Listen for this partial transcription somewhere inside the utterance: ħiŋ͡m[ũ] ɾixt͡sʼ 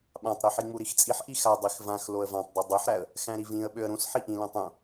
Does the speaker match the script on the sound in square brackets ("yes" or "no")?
no